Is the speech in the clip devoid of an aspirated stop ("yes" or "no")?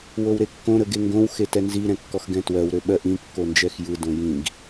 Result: yes